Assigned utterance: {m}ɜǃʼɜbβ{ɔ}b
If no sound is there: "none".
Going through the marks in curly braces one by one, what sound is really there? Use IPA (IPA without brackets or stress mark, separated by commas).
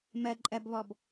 m, ɔ